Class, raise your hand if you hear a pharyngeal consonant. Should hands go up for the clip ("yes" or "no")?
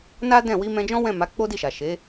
no